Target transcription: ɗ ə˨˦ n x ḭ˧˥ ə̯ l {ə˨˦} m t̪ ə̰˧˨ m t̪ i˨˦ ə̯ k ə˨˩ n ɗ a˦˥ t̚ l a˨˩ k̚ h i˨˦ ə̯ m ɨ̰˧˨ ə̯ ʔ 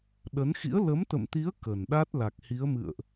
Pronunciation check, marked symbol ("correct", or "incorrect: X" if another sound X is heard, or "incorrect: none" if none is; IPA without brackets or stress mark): correct